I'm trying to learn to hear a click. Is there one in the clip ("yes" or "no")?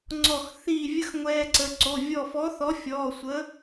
yes